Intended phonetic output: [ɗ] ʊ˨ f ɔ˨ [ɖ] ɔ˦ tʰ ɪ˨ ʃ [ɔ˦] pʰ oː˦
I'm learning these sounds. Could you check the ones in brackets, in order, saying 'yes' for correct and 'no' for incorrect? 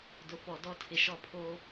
no, no, yes

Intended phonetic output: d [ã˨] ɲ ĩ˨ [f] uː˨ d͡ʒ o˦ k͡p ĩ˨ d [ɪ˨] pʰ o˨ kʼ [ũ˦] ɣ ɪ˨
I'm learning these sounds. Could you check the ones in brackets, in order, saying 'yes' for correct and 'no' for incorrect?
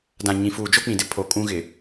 yes, yes, no, yes

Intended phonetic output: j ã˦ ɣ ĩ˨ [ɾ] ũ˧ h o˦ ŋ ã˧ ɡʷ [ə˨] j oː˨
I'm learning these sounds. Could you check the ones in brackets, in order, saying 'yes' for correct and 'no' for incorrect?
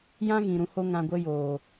yes, no

